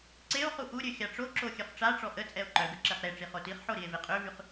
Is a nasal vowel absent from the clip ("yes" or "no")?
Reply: yes